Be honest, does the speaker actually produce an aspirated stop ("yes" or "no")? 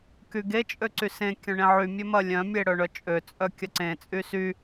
no